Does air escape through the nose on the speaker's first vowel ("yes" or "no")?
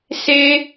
no